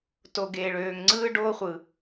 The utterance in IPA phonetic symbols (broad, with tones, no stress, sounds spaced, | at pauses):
t o˨ ɡ eː˨ ɭ øː˨ ŋ ŋ͡ǀ ɯː˦ ɖ oː˦ χʷ ɯ˨